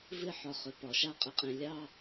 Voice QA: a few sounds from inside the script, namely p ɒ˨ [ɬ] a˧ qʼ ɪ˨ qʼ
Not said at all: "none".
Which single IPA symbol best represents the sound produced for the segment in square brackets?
ʃ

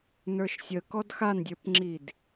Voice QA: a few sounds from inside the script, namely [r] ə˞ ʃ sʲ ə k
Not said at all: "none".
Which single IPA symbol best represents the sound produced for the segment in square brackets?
n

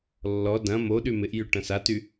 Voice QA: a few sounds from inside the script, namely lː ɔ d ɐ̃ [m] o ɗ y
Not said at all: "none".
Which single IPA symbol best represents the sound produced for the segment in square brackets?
m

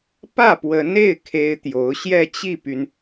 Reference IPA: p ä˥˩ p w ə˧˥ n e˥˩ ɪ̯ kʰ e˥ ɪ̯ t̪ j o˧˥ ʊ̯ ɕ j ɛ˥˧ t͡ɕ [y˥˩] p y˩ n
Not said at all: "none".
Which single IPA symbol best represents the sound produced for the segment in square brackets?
i˥˩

